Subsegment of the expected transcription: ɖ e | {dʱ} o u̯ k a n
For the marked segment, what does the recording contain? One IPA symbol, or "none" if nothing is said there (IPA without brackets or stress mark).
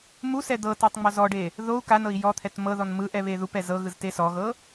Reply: ð